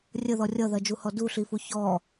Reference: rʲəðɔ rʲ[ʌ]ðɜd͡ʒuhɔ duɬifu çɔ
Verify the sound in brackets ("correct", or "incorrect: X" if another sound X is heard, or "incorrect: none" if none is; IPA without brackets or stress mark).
correct